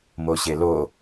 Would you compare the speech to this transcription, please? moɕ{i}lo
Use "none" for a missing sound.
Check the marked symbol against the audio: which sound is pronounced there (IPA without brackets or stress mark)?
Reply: e